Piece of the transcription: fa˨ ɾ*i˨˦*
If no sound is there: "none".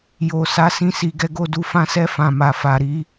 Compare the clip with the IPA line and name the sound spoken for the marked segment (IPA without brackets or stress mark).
i˨˦